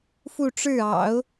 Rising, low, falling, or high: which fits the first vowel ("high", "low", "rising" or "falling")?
falling